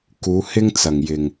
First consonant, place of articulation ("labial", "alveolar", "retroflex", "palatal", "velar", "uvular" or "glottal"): velar